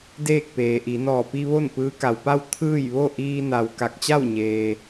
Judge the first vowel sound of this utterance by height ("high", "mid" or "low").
mid